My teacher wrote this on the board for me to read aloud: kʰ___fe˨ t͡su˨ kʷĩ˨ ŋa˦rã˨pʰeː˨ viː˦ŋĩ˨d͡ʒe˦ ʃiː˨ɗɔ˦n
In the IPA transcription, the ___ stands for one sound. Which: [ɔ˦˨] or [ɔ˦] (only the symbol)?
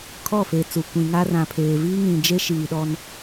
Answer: ɔ˦˨